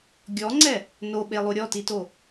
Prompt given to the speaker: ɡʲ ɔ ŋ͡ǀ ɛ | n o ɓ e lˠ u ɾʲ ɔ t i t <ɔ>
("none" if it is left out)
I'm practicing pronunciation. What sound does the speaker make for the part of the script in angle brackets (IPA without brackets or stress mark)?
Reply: o